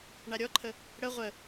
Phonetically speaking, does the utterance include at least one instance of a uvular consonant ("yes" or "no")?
yes